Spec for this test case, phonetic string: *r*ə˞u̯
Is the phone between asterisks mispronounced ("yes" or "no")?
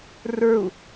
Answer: no